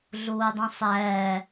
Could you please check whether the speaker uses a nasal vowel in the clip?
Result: yes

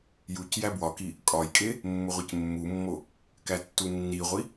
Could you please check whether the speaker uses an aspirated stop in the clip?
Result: no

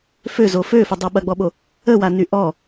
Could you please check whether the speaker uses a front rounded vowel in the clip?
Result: yes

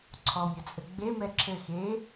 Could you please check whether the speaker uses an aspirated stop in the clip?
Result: yes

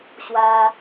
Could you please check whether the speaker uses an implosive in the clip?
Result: no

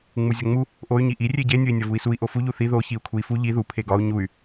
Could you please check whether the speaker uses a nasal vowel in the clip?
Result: no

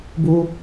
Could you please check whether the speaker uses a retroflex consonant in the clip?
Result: no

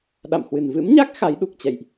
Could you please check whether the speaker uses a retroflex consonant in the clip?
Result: no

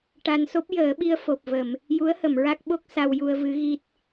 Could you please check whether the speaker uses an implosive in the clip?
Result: yes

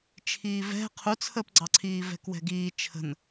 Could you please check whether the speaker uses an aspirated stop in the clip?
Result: yes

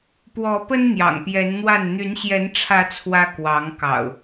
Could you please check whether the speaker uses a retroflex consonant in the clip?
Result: yes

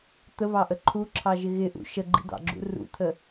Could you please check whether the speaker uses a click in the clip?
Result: yes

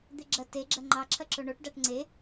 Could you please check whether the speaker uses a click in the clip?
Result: yes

